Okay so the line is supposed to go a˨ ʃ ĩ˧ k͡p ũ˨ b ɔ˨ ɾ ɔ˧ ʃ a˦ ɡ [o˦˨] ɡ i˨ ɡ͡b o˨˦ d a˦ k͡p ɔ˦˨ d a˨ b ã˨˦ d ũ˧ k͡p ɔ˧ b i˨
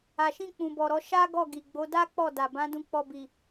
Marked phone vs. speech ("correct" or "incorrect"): incorrect